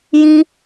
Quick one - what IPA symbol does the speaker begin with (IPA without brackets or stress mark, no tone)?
j